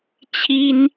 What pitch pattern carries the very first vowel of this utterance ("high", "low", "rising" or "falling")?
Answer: high